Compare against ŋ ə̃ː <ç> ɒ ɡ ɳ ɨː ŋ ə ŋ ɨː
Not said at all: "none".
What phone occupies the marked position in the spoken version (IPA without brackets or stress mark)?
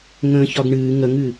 ç